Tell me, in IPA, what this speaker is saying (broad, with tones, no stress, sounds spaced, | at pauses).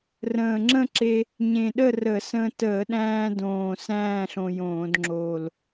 r ə̃ː˨˩ ŋ͡ǁ ə̃˥˧ ǁ e˧ | ɲ ẽ˨˩ ɗ ə˥˧ r ə˧˩˧ s ə̃˧ t əː˧˩˧ ɗ æ̃ː˧ d õː˨˩ s æ̃ː˥˧ ɬ õ˧ j õː˧˩˧ d ŋ͡ǁ o˨˩ l